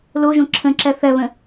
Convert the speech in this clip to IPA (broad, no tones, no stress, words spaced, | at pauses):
loʒõ ǁʰə̃ǁɜ θɜβə̃